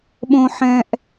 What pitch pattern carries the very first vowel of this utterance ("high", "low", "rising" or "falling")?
high